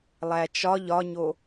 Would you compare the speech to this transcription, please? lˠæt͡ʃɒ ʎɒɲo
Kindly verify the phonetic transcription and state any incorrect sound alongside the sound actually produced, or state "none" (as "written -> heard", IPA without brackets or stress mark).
none